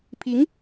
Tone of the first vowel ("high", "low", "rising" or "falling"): rising